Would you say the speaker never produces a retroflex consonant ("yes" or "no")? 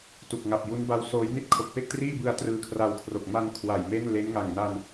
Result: yes